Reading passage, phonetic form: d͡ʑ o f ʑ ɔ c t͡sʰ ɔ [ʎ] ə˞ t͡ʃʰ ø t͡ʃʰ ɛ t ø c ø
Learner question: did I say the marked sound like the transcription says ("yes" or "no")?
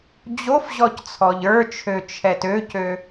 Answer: yes